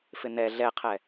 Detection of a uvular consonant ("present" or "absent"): present